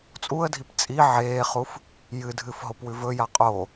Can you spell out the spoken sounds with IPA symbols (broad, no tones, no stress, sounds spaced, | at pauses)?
t͡sʼ u ə̯ dʱ i p t͡sʼ i ʕ eː χ u f | j ɨ dʱ ɨ f ɦ o p w ʉ v ɵ j a qʼ o